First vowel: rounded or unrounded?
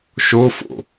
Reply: rounded